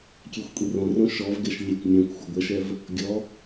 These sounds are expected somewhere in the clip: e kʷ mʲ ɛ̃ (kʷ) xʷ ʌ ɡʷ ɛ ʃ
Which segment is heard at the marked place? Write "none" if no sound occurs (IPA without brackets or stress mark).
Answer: kʷ